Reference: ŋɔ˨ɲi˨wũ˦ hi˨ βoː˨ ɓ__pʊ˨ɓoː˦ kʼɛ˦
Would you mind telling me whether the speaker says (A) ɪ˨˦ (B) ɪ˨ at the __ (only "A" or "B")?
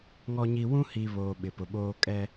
B